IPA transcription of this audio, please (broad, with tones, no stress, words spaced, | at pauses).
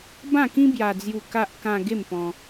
bã˥˧kĩ˦ bja˧d͡zju˧ ka˦ʔ kã˧ ɡe˥˧mpɔ̃˧